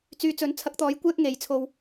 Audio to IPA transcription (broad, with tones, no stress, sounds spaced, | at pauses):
t͡s yː˨˧ t͡s ɵ˨˥ n t͡sʰ ɐ˧ k̚ t̪ ɔː˨˥ j kʷ ɛː˥ k̚ ŋ e˨˧ j t͡sʰ o˧ w